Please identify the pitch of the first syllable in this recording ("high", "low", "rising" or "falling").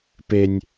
low